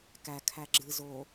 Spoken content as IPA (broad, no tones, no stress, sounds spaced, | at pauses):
k æ kʰ æ ɡ͡ǁ ɨ z o